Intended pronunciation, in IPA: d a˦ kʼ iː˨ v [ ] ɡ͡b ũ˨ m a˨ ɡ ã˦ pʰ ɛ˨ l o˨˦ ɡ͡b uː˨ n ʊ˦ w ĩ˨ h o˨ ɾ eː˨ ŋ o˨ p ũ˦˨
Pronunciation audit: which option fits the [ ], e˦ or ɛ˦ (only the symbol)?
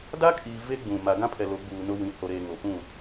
e˦